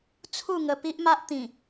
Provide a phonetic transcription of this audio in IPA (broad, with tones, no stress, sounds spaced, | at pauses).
t͡sʰ u˥˧ ŋ ə˧ p i˦ ʔ m a˦ ʔ t̪ ĩ˨˩